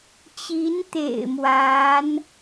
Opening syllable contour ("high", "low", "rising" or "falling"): rising